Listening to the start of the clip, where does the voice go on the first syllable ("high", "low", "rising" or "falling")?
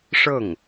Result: falling